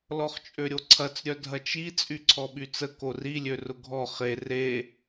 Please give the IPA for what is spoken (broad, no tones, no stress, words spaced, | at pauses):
lɔχt͡ʃʼøɾʲoǀʰɐt͡s ɾʲœdʱɐt͡ʃi t͡sʼyǀʰɔɓyt͡sə kori lʲørʊɡʱɔ χe re